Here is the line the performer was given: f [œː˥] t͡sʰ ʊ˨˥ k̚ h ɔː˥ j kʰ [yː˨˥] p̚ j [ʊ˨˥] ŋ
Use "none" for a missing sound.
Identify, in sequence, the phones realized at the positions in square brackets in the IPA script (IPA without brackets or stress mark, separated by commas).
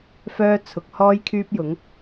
œː˥, yː˥, ʊ˨˥